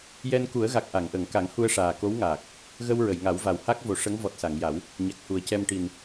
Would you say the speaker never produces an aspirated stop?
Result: yes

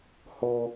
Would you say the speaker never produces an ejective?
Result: yes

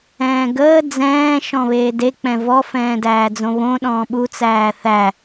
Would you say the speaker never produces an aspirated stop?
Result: yes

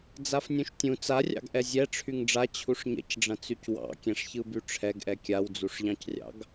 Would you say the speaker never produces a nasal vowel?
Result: no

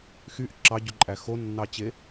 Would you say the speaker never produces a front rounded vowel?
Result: no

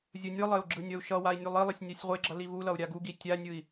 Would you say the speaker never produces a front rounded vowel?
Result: yes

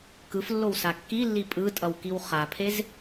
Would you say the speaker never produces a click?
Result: yes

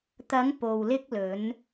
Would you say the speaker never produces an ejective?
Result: yes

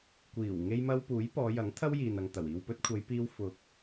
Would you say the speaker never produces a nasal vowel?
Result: yes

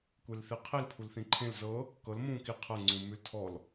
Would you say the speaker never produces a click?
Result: no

